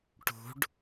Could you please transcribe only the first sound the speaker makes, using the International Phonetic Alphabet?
ʈ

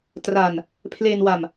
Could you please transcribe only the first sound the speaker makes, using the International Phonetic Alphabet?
t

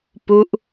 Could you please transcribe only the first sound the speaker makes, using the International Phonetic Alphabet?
p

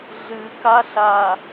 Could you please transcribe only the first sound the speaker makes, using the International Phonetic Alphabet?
ɮ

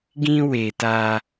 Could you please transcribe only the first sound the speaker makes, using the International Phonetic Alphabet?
ɡ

